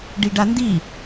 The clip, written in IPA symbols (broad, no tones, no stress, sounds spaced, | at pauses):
ɖ i ɖ a n d i